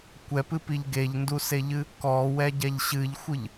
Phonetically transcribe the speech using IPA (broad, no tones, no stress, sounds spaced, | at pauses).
kʷ ɛ p ɨ p i ʎ ɡ e ʎ n d u s e ʎ ɨ | k ɔ w ɛ ɟ ɛ ʎ ɕ ɨ ʎ xʷ ɨ ʎ